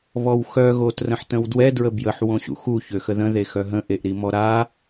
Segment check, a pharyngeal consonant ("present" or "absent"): present